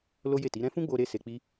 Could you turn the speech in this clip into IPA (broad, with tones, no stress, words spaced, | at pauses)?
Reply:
lo˦je˦˨ ti˨˦ɾɛ̃˦ fũ˦ɡ͡bo˧ ɾe˦se˧k͡pi˦